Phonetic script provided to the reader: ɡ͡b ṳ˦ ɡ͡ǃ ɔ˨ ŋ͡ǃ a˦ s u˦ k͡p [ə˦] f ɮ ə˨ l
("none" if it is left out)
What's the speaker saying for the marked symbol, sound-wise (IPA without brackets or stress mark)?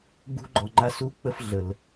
ə˦